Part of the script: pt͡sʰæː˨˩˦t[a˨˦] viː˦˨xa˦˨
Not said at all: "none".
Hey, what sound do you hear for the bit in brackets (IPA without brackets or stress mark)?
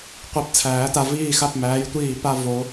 a˨